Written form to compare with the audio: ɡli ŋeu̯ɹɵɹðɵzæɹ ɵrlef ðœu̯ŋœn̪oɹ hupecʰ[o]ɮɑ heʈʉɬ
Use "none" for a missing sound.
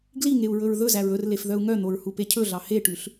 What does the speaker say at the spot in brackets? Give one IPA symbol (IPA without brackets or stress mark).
ɵ